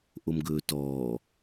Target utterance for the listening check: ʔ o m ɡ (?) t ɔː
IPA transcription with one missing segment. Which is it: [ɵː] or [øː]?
ɵː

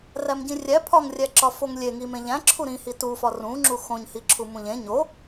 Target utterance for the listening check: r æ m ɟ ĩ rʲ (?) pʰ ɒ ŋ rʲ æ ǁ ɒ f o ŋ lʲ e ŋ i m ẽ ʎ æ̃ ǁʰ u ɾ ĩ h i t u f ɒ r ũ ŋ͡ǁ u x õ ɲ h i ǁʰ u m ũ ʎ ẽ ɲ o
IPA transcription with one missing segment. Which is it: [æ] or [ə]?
æ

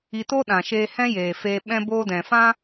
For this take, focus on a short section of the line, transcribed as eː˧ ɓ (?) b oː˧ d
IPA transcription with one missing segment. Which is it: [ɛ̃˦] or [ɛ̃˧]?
ɛ̃˧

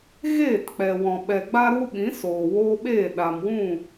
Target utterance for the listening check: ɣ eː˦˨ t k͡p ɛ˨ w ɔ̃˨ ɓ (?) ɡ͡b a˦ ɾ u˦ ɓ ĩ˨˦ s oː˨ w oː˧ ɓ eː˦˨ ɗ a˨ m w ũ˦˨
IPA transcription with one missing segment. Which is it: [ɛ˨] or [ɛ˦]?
ɛ˨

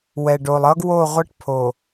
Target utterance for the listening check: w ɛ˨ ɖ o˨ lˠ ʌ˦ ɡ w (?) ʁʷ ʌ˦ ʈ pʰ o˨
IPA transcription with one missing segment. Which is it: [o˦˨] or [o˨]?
o˦˨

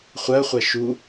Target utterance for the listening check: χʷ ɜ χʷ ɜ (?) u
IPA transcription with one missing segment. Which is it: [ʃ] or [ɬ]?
ʃ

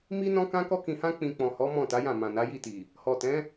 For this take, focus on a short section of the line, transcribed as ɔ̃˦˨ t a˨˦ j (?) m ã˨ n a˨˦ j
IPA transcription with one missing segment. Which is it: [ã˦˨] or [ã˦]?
ã˦˨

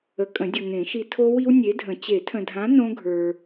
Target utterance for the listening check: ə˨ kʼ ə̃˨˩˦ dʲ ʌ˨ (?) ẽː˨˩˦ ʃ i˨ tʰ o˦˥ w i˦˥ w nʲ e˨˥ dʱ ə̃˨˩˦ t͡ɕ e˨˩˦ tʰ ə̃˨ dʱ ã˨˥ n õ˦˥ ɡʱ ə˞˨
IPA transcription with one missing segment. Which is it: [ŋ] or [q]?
ŋ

